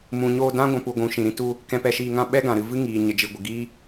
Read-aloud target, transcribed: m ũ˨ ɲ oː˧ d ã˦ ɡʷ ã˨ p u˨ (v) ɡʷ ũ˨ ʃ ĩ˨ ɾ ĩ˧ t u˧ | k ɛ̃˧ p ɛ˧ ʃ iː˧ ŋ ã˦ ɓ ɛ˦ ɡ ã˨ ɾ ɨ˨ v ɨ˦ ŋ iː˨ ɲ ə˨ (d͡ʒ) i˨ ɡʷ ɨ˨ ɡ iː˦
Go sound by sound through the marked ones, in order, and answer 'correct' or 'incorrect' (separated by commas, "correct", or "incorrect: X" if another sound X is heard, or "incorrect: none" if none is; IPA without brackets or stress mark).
incorrect: none, correct